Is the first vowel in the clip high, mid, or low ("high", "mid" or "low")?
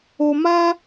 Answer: mid